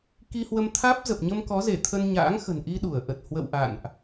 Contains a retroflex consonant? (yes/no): no